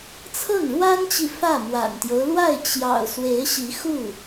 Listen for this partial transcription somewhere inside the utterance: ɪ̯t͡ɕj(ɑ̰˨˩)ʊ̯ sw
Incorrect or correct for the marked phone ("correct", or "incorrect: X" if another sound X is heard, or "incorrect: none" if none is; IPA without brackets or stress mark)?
correct